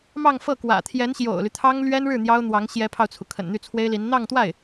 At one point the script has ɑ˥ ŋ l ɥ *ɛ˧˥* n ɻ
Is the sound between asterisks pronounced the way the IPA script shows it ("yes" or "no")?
no